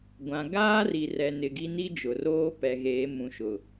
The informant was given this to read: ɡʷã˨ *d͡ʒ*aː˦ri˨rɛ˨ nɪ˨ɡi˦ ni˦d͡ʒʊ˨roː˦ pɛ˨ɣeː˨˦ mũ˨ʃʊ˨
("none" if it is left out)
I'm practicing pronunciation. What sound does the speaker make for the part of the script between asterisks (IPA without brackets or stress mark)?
ɡ